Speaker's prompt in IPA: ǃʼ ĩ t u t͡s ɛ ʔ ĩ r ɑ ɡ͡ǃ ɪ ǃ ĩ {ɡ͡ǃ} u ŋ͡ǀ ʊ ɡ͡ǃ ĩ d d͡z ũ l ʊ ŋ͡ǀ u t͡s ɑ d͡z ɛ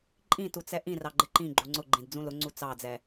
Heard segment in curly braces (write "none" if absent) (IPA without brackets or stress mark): ɡ͡ǃ